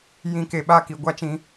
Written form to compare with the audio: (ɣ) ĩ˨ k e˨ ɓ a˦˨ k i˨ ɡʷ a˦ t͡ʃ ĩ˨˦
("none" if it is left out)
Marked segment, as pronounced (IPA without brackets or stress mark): j